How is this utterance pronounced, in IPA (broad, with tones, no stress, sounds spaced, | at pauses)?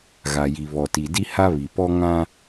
ɣ a˨ j i˨ β ɔ˨ t i˨ d i˦ h a˦ β i˨ p ɔ˦ ŋ ã˦